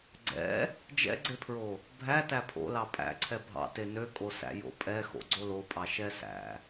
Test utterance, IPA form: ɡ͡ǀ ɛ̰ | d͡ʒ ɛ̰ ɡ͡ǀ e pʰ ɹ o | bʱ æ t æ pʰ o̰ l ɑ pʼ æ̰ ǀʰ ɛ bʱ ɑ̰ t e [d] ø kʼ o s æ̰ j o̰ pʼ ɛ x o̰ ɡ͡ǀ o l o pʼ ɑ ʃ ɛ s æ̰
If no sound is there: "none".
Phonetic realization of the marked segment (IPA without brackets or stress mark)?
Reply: n